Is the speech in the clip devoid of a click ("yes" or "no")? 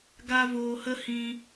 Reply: yes